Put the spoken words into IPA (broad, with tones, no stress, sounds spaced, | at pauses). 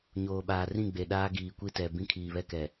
ɲ oː˨ ɓ aː˨ r ĩ˦˨ ɡ͡b e˨ ɗ aː˦ ɡ iː˨ kʷ i˦ t ɛ˨ b ĩ˦ kʰ iː˨ β ɛ˦ k ɛ˨